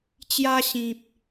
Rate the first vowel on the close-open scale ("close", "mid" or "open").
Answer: open